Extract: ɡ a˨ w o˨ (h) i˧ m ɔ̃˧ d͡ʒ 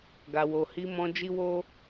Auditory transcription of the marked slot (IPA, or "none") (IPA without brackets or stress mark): h